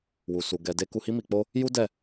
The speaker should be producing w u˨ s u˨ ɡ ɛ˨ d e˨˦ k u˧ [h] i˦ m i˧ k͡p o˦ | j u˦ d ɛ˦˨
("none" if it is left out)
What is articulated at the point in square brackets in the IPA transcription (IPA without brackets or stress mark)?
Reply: h